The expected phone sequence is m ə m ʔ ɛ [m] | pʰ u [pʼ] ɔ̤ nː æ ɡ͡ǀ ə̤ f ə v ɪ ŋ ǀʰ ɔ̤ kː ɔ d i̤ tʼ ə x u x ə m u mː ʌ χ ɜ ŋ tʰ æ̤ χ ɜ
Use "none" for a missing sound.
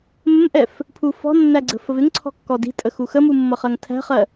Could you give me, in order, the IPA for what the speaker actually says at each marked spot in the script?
f, f

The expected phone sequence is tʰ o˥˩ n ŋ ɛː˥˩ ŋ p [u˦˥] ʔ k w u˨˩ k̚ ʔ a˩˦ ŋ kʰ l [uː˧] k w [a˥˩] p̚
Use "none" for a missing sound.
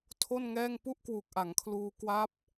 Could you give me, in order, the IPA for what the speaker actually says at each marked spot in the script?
u˥˩, uː˧, a˦˥

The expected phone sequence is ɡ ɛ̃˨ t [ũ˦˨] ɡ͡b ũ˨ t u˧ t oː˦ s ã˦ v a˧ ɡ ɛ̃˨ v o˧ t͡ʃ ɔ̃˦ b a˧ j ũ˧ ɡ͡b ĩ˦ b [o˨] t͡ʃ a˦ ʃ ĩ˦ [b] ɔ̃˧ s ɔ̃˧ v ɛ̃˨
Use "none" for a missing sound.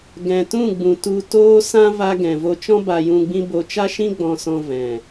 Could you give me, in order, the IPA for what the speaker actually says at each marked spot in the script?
ũ˦˨, o˧, ɡ͡b

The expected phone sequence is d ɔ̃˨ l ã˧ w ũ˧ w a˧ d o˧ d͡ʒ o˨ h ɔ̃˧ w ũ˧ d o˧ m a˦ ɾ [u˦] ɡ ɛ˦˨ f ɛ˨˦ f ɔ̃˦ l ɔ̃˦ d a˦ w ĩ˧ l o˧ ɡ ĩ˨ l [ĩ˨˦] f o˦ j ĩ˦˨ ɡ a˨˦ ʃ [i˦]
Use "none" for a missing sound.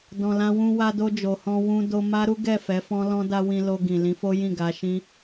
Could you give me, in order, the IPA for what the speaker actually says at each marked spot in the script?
u˦, ĩ˨˦, ĩ˦

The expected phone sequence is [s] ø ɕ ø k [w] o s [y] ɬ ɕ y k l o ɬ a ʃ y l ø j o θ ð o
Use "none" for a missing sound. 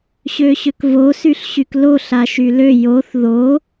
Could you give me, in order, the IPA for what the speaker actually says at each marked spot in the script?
ɕ, v, y

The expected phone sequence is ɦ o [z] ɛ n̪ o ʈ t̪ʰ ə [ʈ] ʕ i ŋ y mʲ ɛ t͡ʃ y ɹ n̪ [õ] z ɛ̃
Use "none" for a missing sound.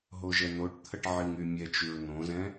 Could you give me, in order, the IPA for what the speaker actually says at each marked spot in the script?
ʒ, ʈ, õ

